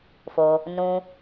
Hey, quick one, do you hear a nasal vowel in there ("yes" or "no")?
yes